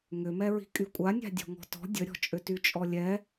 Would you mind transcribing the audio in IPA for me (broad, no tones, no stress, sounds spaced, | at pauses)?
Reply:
ŋ ʏ m ɛ ɹ i̤ kʼ y kʷʼ a nʲ a̤ dʲ ɔ̤ ŋ ɔ̤ t ɔ̤ dʲ ə ɾʲ ɔ̤ t͡ʃʼ ʏ t y t͡ʃʼ ɔ lʲ ɛ